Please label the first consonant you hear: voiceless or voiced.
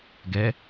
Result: voiced